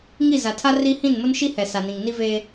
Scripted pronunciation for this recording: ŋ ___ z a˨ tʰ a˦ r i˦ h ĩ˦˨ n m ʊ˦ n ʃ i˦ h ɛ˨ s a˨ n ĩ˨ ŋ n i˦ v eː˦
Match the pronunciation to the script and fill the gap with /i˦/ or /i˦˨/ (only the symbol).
i˦˨